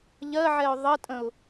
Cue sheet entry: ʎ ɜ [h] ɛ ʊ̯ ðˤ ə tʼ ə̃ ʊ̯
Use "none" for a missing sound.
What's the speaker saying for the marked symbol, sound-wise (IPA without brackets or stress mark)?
ʕ